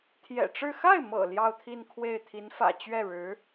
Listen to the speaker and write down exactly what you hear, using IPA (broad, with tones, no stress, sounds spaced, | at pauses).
t̪ʰ j ɛ̰˨˩ ʈ͡ʂ ɻ̩˥˧ x a˥˩ ɪ̯ m ɤ̰˨˩ l j ɑ˥˧ ʊ̯ t̪ʰ i˥˧ n kʰ w e˥˩ ɪ̯ t̪ʰ i˧˥ n f ä̰˨˩ t͡ɕ ɥ ɛ˥˩ ɻ ɻ̩˧˥